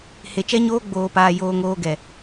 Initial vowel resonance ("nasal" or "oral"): oral